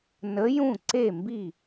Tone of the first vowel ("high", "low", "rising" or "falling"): rising